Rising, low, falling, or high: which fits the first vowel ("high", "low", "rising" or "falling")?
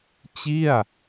falling